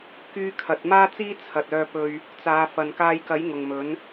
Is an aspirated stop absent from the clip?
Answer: no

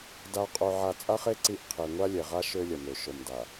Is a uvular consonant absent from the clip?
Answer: no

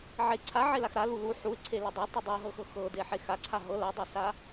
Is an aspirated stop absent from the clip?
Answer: no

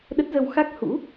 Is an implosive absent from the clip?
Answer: no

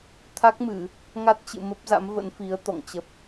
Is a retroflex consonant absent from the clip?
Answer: yes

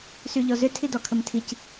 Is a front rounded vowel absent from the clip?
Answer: no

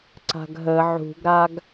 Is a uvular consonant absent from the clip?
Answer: yes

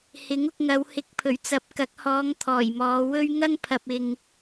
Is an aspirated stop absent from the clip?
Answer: no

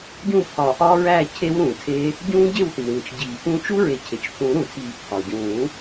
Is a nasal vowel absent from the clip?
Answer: no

